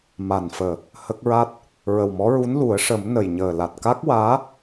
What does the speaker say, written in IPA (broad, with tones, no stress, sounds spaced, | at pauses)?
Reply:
m a˨˩ n f əː˨˩ | h ə˦˥ k̚ ɹ a˦˥ t̚ | ɹ ə˨˩ w m ɔ˧˥ ɹ u˧˥ n l u˨˩˦ ə̯ ʂ ə˨˩˦ m n ə˨˩ j ɲ əː˨˩ l a˨˩ t̚ k a˦˥ k̚ w aː˧˥